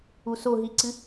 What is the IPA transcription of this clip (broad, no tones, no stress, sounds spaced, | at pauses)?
u s o ɦ i ǀ ɨ